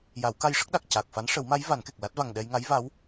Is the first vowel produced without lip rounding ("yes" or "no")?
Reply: yes